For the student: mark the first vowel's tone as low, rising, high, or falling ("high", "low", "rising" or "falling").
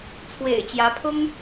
low